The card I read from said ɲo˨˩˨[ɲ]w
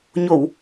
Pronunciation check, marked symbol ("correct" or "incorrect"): incorrect